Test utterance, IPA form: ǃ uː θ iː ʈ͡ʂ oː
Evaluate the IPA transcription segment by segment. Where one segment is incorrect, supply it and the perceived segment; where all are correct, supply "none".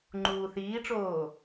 ǃ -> ŋ͡ǃ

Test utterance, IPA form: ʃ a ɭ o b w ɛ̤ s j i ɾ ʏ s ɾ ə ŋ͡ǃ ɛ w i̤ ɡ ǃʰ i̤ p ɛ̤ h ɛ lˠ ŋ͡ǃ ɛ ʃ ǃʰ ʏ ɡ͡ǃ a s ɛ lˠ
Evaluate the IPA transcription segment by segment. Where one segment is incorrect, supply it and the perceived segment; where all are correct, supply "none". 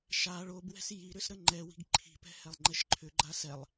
none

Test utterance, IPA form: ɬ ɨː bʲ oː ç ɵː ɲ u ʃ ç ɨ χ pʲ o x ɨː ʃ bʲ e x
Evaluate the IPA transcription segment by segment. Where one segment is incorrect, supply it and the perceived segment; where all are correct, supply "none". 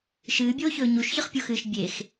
ɬ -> ʃ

